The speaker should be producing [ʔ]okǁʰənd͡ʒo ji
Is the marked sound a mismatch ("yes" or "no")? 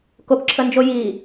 yes